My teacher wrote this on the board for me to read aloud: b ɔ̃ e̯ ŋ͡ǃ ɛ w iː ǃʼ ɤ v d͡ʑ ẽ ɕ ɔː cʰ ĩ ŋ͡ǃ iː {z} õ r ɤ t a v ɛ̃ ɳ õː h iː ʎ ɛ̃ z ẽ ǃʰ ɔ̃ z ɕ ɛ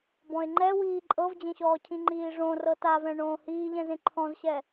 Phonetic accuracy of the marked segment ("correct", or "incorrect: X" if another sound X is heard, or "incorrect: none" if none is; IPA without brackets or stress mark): incorrect: ʐ